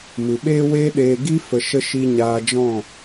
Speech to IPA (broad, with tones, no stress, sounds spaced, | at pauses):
m ɨ˨ ɓ eː˦ w eː˦ ɗ eː˧ ɡ i˦ f ə˧ ʃ ə˦ ʃ i˧ ɲ aː˧ d͡ʒ ɔ̃˦˨